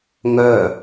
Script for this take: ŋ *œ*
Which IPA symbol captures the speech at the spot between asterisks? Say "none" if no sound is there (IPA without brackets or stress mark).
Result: œ